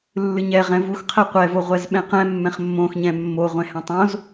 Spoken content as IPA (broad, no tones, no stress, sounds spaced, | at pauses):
lː ɨ ɲ ɛ ʁ ɛ̃ v u x qʰ ɛ qʷ ɛ v o ʁʷ ɛ z ɓ ɛ̃ q ɛ̃ mː ɛ̃ χ mː õ x ɲ ɛ̃ mː o ʁʷ ɛ̃ h ɛ̃ tˤ õ z